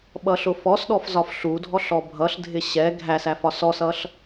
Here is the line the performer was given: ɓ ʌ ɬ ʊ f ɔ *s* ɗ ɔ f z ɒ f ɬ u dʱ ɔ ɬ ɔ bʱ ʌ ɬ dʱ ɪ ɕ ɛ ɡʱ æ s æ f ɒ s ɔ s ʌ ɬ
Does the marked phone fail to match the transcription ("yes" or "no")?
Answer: no